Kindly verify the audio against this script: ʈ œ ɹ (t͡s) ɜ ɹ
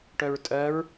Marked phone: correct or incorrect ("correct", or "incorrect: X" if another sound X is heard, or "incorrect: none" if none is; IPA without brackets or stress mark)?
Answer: incorrect: tʼ